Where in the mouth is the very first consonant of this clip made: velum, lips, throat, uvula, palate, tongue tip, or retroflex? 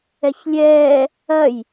palate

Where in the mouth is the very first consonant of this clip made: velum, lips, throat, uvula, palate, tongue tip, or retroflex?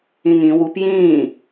velum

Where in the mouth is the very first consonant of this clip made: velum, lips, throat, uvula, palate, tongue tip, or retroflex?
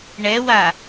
retroflex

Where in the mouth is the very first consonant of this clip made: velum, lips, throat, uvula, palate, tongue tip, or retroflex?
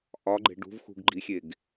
throat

